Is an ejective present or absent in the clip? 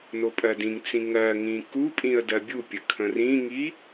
present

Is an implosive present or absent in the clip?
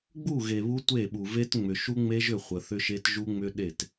present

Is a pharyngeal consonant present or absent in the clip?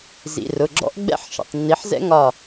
present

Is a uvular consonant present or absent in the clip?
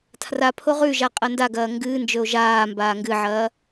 present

